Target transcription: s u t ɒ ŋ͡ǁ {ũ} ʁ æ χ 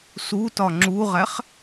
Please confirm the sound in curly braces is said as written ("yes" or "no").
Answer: no